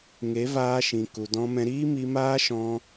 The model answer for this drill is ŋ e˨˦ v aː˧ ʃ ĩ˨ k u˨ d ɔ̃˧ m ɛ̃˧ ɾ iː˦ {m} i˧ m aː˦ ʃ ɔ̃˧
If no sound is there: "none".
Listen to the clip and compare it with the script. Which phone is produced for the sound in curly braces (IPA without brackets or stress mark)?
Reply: m